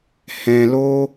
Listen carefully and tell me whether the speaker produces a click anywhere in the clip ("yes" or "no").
no